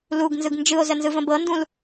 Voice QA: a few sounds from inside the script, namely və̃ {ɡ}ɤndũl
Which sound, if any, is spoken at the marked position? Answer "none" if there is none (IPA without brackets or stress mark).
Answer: b